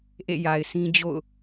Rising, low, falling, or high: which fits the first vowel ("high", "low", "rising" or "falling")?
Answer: falling